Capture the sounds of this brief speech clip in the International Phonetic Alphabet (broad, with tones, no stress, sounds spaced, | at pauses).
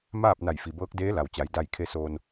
m aː˥˨ p̚ n a˧˩ j f i˩ b ɤː˧˥ k̚ d eː˧˥ l a˩ w t͡ɕ a˩˧ j d a˧˩ j kʰ e˧ s oː˧ n